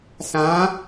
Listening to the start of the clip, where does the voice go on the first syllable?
rising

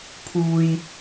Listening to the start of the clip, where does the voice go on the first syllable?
low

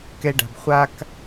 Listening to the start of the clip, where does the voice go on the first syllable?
high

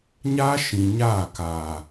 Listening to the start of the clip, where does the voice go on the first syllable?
high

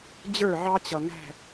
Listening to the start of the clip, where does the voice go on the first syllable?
falling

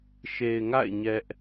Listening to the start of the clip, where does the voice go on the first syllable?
low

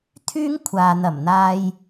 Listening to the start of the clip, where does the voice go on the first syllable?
high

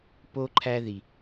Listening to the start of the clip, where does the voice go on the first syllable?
high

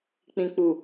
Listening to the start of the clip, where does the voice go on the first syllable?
low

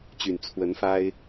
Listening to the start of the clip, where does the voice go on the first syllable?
low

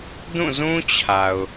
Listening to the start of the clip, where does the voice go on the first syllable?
falling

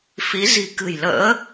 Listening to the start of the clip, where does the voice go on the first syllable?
rising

